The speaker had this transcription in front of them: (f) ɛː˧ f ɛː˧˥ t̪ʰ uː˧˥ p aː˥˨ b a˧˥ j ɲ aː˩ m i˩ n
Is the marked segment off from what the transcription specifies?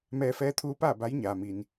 yes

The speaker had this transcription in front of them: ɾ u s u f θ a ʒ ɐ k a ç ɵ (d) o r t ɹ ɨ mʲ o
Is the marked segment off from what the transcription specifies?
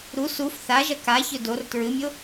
no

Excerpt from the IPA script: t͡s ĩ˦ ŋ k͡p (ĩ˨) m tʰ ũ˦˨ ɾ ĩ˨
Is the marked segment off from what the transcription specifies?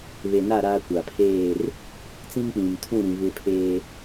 no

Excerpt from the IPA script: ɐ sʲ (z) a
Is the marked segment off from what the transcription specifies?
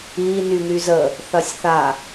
yes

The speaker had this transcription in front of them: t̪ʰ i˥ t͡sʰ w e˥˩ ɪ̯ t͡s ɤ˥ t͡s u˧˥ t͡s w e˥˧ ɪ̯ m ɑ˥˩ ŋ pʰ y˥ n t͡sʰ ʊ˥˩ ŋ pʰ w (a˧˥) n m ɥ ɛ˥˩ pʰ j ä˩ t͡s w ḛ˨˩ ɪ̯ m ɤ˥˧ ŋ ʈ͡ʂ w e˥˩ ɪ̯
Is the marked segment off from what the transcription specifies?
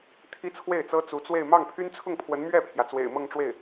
yes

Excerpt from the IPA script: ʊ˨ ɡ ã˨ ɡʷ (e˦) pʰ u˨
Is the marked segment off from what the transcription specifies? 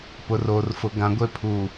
no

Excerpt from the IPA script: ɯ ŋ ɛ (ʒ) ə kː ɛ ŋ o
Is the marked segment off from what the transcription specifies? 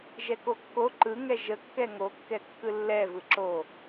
no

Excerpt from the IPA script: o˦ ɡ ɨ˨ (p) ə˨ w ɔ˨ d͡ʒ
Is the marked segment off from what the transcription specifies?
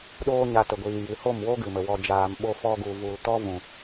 yes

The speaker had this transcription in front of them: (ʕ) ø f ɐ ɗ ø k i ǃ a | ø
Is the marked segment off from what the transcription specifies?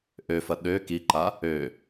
yes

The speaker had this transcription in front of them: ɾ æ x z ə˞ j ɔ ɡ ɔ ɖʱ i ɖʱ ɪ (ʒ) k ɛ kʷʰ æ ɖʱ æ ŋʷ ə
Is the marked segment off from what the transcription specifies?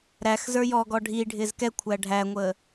yes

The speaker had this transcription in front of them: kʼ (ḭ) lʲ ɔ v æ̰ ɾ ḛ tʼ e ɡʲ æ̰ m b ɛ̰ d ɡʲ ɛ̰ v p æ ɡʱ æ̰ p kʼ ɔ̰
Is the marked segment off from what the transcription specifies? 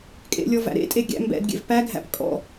yes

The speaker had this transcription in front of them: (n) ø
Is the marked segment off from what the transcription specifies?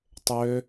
yes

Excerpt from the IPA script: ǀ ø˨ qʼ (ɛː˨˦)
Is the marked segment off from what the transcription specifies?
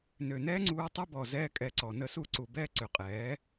no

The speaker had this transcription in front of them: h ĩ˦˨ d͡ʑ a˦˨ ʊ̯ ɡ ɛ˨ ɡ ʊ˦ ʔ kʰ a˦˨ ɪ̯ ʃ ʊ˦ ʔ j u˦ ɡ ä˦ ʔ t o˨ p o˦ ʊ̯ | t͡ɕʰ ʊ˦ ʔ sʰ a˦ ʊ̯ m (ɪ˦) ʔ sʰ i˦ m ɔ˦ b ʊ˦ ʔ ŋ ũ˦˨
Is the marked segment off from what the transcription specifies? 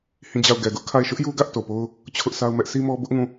yes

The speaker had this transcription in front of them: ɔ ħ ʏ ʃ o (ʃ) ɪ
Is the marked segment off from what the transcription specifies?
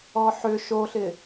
yes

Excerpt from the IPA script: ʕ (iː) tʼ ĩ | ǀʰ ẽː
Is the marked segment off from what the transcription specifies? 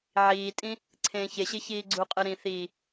no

